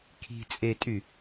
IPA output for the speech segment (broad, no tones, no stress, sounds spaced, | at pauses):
kʰ i̤ t͡sʼ e tʼ y